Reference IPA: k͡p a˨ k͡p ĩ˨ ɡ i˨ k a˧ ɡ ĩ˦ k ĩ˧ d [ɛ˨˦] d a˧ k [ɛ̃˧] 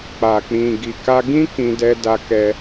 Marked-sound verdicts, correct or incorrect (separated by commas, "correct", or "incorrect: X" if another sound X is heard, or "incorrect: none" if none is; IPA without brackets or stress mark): incorrect: ɛ˧, incorrect: ɛ˧